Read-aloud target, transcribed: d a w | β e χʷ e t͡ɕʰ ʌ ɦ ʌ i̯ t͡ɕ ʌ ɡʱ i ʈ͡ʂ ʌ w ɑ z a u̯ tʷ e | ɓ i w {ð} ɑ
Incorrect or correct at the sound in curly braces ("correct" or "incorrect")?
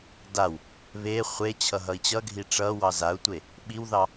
correct